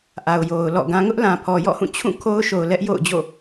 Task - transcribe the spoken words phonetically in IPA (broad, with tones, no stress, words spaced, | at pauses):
ʔa˨ʊ̯jo˨ʊ̯lɔ̰˦˨ɡã˦ ŋʊ˦ʔlã˨ pʰɔ˨jɔ̰˦˨hũ˦˨t͡ɕʰũ˦˨ kʰo˦ʊ̯ʃo˨ʊ̯ lɛ˦ʔjo̰˦˨ʊ̯d͡ʑo̰˦˨